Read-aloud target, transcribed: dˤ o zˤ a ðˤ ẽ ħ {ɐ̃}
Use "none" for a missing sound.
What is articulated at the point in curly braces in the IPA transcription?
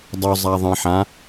ã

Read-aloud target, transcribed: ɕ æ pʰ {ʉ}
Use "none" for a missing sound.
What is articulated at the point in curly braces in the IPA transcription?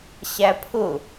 ʊ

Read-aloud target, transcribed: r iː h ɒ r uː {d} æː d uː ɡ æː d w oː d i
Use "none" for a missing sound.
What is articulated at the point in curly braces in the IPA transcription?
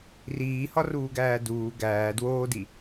ɡ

